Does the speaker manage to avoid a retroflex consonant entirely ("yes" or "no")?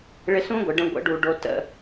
no